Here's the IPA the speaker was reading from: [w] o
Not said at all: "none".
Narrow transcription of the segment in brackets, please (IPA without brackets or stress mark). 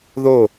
ð